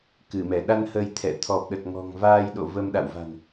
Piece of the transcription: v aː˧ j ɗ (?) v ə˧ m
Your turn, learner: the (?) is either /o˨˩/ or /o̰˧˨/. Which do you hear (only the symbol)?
o̰˧˨